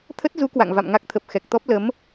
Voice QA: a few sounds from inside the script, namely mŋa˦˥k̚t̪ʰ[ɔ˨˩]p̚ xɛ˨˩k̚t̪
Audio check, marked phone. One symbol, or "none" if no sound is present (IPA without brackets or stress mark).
ə˨˩